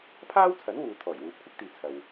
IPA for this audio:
pʰ aː˥ w t͡sʰ ɐ˨˥ n w uː˨ t̪ʰ ɔː˨˩ j w uː˨˥ p̚ kʷʰ ɪ˥ k̚ t̪ iː˨ t͡sʰ ɐ˨ w

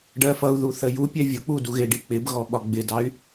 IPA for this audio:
ɖ ɜ f ʌ u̯ ð u θ ə j u pʲ ɛ vʲ ʊ k͡p u d u ɣ ɪ ɖ i k͡p ɪ b ɣ ɔ ɓ ɒ ɡ͡b ɪ d ɑ y̯

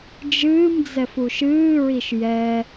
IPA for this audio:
d͡ʒ ɨː m d͡z ɛ f u ʃ ɨː ɹ i ʃ j ɛ

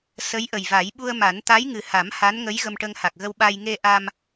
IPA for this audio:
s ə˧˥ j ʔ ə˨˩ j v a˨˩˦ j ɓ u˧ ə̯ m a˨˩˦ n t̪ a˧˥ j ŋ ɨ˨˩ h a˨˩˦ m h a˧˥ n ŋ ə˧˥ j ɣ ə˧ m ʈ ə˧ ŋ h a˨˩ k̚ ɣ ə˧ w ɓ a˧ j ŋ e˧ ʔ a˧ m

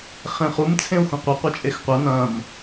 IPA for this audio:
χ ẽ χ u m t͡sʰ ẽ u̯ x ũ qʷ ɐ qʷ ɐ t͡ʃʼ e x qʷ ɐ n ɐ̃ m

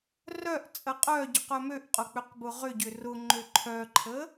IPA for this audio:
r œ ʔ t͡sʼ ə qʼ œ ɟ ʏ q œ m ø ʔ qʼ ʊ k͡p ʏ q b ʊ ʁ ʏ ɟ ʏ r ʊ ŋ͡ǃ ø ǃʰ œ ǃʰ ə

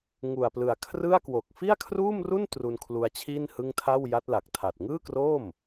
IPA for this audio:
ŋ u˨˩ a̯ p l ɯ˨˩ a̯ kʰ r ɯ˥˩ a̯ k w o˨˩ k̚ f i˥˩ a̯ kʰ r uː˥˩ m r u˥˩ n t r u˧ n kʰ l u˧ a̯ t͡ɕʰ iː˥˩ n h ɯ˥˩ ŋ tʰ a˥˩ w j a˦˥ t̚ l a˨˩ k̚ tʰ a˨˩ t̚ ŋ ɯː˥˩ k r oː˥˩ m

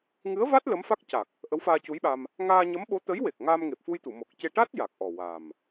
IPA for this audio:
ŋ ɨ˧˥ ə̯ v a˦˥ t̚ l ə˧˥ m f a˦˥ k̚ c a˨˩ k̚ | ʔ ə˧˥ w f aː˧ c u˧˥ j ɓ a˧ m | ŋ aː˧ ɲ ə˧˥ m ɓ o˧˥ t̪ ə˧˥ j w e˨˩ k̚ ŋ aː˧ m ŋ e˨˩ p̚ f u˧ j t̪ u˨˩˨ m o˨˩ k̚ c e˧ ʈ a˦˥ t̚ j a˨˩ k̚ ʔ ɔ˨˩ w a˨˩ m

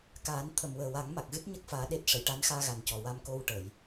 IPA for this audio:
k aː˨˩˦ n t̪ʰ ə˨˩ m w əː˨˩ w a˨˩˦ ŋ m a˨˩ k̚ ɣ ɨ˦˥ t̚ ɲ ə˦˥ k̚ f aː˧˥ ɗ e˦˥ t̚ ʂ ə˨˩˨ j ʈ a˧˥ n x aː˧ ɣ a˨˩ n c ɔ˨˩ w a˧ m k o˧ w ʈ ə˨˩˨ j

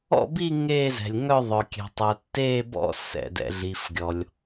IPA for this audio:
ɔ̰˥˧ b i˥˧ ŋ eː˥˧ z ɛ̤˩ lʲ ŋ œ˥˧ ðˤ œ˩ kʲ ɛ̤˩ tˤ œ˩ tː eː˥˧ b ɔ̰˥˧ s ɛ̰˩ d ɛ̰˩ ɮ i˩ f ɡʲ ɔ˩ lʲ

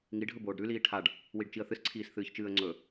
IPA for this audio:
ŋ i ɖʱ ɵ b oː ɖ ɾ ʉ l iː ʈʰ a ɖ | w i ɖ t͡ʃ i ə̯ θ ɨ s ǀʰ iː s θ ɨː ç t͡ʃ ɨː ə̯ ŋ͡ǀ ɵ

